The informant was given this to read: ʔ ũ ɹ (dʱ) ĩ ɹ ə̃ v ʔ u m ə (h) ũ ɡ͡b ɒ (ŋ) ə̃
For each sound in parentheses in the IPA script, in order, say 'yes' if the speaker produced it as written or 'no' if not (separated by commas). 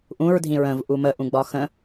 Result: yes, no, no